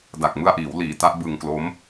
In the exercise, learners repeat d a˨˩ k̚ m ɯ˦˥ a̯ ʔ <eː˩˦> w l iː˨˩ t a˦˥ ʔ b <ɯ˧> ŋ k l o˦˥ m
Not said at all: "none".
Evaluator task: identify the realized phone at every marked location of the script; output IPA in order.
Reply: iː˩˦, ɯ˧

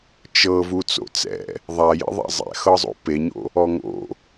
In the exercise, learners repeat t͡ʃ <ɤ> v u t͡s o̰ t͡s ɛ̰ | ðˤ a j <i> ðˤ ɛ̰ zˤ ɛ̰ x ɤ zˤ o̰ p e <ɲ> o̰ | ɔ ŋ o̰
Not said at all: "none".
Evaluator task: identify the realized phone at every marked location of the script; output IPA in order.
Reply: ɤ, ḭ, ɲ

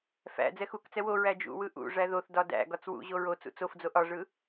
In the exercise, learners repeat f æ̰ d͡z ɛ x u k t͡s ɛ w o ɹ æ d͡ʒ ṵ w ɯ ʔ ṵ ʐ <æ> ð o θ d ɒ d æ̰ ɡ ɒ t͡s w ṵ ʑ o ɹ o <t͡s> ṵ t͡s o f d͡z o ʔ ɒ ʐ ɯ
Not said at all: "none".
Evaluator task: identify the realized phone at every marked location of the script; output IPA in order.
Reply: æ, t͡s

